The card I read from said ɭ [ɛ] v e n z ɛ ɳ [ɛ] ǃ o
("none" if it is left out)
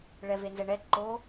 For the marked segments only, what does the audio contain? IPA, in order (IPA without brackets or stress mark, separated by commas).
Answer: ɛ, ɛ